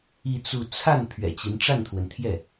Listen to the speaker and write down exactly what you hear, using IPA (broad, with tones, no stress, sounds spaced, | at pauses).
i˥˧ t͡s u˥˧ t͡sʰ a˥˩ n pʰ ɥ ɛ̰˨˩ t͡ɕ i˧˥ n ʈ͡ʂ a˥˩ n t̪ʰ w ə˩ n t̪ʰ j ɛ˥˩